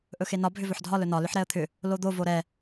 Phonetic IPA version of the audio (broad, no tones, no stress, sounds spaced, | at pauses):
ʔ ɵ x e n ɒ bʱ ʏ v ɵ ħ dʱ ɒ l ɵ n ɒ l ʏ ħ ɾ ɛ ə̯ t̪ʰ ʏ | l o d̪ o v o ɾ ɛ